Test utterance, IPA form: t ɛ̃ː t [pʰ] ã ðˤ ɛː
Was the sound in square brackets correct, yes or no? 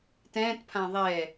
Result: yes